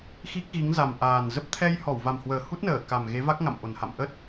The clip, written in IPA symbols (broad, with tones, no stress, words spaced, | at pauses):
xi˦˥k̚ɣi˨˦ŋ za˨˩mʔaː˨˩nzə˦˥p̚ t̪ʰɛ˧j hɔ˧˩wva˨˩mhwəː˨˩ hu˦˥t̚nəː˧˩ ka˨˩mɣe˨˦va˦˥k̚ ŋa̰˧˨mʔo˨˩nha̰˧˨m ʔə˦˥t̚